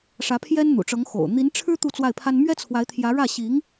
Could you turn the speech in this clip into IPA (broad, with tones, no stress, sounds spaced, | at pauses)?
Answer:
ʂ ä˧˥ pʰ j ɛ˥ n n̪ ṵ˨˩ ʈ͡ʂ ɤ˧˥ ŋ x o̰˨˩ ʊ̯ n̪ i˧˥ n ʈ͡ʂʰ ɻ̩˥ t̪ u˥˧ t͡s w a˥˩ ɪ̯ pʰ a˥ n m ɥ ɛ˥ t͡sʰ w a˧˥ ɪ̯ t̪ʰ j ä˧˥ ɻ ä˥˩ ɕ i˧˥ ŋ